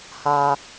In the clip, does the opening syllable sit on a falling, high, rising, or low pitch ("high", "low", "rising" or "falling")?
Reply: high